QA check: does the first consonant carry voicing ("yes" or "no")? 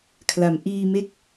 no